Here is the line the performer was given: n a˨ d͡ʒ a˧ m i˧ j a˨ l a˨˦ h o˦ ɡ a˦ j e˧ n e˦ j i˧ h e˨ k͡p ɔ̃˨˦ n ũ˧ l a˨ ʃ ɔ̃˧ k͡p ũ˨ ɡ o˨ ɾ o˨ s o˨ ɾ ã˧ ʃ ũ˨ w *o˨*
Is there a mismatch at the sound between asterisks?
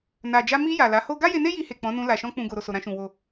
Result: no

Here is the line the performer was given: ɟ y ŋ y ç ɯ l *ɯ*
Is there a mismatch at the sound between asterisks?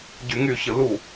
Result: yes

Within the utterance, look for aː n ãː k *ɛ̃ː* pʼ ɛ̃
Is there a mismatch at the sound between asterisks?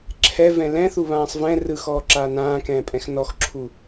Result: no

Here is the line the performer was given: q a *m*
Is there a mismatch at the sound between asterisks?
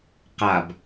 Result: yes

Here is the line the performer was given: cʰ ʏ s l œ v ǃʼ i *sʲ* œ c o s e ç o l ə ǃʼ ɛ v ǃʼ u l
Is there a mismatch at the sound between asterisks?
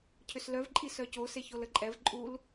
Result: yes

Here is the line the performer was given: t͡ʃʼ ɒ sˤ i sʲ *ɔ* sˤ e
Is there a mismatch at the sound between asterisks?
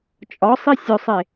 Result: yes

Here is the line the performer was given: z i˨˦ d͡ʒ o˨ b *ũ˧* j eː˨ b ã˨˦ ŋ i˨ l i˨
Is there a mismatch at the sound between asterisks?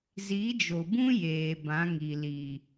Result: yes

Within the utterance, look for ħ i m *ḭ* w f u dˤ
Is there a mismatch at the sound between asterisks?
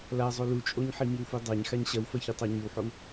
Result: yes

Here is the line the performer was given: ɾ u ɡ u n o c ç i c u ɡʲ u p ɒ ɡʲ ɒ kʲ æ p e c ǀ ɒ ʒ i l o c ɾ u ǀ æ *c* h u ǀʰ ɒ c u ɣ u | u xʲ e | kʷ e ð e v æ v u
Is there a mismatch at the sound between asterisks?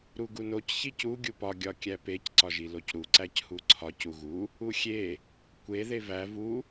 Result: no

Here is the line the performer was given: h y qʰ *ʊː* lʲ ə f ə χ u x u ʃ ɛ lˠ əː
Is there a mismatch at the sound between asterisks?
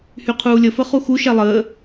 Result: yes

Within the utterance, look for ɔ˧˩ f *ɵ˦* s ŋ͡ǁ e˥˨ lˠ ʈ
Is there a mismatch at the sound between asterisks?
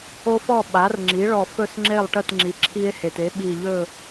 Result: yes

